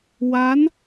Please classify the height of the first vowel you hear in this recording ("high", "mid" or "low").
low